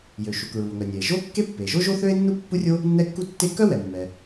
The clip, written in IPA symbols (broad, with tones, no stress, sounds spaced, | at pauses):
j ø˩ ʃ u˩ k ɹ u˩ o̯ ŋ œ˩ nʲ ɛ˩ e̯ ʒ o˥ kː e˥ pː e˩ ʒ o˥ ʒ o˥ θ ø˥ e̯ nː u˥ pː u˥ rʲ o˥ | nː ɛ˥ kː u˥ tː e˥ k œ˥ w ɛ˩ mː ɛ˩